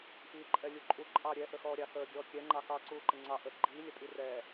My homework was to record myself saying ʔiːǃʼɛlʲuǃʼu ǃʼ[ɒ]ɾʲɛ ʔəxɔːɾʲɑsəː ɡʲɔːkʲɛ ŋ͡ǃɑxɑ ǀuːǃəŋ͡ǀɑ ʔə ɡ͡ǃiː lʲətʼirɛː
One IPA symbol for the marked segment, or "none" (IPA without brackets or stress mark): ɑ